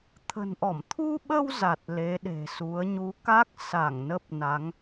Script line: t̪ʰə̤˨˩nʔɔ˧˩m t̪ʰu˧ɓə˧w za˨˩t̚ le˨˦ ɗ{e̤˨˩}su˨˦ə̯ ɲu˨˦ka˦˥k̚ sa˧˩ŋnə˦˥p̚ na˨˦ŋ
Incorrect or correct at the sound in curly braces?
correct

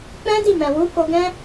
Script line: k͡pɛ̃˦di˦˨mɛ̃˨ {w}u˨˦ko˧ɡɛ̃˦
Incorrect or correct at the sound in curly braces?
correct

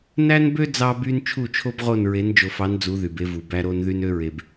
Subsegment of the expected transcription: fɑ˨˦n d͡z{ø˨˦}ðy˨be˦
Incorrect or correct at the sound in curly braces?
incorrect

